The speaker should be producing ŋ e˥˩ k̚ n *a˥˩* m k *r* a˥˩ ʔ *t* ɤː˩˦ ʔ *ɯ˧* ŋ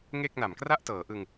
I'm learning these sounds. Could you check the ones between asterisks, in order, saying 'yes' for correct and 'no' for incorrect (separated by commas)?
no, yes, yes, yes